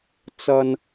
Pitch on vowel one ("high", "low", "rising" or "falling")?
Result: high